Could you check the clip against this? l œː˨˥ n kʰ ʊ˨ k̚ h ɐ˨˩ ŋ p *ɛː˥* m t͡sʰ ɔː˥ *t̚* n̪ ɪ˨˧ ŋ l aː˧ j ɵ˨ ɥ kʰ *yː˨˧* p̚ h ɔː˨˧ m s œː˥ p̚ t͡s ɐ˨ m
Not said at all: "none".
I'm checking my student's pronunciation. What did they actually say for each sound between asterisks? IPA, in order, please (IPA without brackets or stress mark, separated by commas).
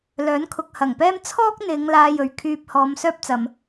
ɛː˥, k̚, yː˧